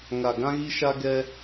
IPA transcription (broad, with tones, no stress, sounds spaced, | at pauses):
ŋ a˨ ɡ ã˦ ɣ i˦ ʃ a˦ ɡ ɛ˦